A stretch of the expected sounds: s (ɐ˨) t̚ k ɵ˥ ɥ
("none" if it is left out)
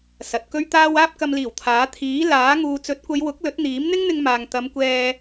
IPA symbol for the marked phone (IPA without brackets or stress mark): ɐ˨